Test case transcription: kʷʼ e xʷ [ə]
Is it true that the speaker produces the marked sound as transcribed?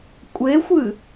no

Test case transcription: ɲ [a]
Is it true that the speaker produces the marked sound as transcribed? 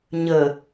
no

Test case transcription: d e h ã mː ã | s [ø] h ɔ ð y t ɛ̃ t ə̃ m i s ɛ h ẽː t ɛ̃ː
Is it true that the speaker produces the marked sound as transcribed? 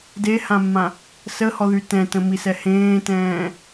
no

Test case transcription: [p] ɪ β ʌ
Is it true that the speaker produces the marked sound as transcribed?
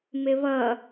no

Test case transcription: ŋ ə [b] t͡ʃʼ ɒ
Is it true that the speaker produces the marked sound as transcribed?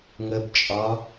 yes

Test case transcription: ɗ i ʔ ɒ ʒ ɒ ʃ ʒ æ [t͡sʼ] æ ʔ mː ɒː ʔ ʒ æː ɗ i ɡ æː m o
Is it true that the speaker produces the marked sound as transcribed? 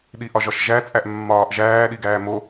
yes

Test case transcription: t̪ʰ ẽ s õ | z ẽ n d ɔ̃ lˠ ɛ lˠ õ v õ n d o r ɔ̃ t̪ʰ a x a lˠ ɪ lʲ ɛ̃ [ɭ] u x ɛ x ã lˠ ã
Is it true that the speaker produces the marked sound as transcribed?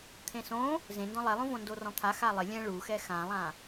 yes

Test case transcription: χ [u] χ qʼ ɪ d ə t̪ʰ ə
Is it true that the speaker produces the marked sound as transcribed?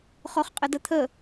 no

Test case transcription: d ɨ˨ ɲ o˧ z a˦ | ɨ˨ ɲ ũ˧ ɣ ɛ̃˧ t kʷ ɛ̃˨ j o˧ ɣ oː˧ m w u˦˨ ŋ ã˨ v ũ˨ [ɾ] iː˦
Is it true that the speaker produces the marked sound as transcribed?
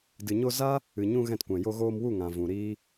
yes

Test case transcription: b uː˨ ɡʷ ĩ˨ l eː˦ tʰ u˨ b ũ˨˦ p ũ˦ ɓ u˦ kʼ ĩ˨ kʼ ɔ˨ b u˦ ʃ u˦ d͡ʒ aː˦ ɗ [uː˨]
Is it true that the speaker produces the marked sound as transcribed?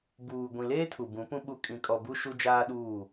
no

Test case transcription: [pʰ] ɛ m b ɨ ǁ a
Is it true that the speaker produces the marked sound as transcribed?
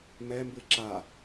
no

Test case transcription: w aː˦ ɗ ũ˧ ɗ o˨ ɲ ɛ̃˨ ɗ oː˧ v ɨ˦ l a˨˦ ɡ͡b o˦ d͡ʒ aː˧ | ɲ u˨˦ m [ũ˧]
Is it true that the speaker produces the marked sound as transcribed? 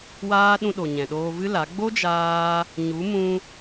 yes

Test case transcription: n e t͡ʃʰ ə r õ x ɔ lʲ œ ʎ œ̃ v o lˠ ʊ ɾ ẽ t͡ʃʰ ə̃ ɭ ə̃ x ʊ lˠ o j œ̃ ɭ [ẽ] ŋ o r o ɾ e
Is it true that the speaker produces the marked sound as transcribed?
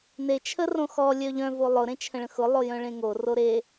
yes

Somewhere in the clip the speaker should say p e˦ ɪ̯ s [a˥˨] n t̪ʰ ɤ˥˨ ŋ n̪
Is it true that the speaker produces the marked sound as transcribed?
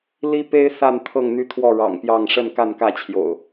yes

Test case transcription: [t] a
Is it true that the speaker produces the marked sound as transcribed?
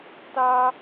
yes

